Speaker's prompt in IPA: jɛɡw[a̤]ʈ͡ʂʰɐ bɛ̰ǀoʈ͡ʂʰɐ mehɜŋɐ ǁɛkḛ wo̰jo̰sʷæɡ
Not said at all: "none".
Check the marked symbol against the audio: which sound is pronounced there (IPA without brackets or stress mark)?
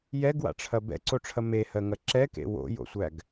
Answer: a̰